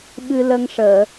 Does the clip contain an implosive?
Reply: yes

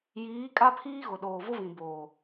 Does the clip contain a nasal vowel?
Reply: yes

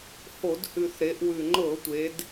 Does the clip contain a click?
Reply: yes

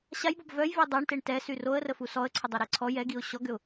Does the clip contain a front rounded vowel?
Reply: yes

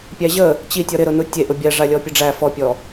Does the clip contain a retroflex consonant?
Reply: yes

